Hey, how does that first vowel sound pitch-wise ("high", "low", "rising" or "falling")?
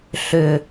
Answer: low